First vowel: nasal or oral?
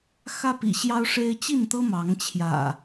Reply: oral